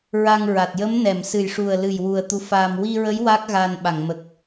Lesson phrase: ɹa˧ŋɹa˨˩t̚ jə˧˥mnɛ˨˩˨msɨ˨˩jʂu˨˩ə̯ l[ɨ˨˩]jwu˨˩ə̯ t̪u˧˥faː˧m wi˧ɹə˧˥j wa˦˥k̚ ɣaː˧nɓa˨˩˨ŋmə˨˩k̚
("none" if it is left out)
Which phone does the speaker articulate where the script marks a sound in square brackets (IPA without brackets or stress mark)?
ɨ˨˩